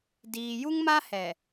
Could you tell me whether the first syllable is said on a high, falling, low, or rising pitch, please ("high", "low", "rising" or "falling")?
low